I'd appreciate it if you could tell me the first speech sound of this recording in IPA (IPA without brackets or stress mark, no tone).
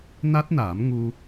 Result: n